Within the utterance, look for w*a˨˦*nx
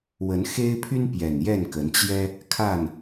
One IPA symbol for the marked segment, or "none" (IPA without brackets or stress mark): ə˨˦